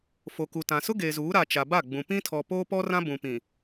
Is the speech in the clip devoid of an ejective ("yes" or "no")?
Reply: yes